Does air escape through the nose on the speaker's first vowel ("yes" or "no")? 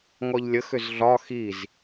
no